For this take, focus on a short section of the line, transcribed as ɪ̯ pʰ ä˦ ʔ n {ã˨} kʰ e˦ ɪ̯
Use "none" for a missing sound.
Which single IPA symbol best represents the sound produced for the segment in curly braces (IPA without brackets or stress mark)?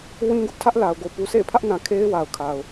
ã˨